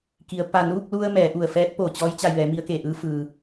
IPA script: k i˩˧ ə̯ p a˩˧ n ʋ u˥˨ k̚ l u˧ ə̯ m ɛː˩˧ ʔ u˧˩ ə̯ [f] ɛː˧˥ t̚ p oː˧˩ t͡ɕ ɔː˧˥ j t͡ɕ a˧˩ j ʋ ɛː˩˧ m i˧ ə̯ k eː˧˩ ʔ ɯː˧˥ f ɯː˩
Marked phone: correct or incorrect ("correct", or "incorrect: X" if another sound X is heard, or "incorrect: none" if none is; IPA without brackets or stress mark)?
correct